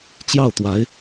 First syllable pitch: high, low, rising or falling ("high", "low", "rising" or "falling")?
falling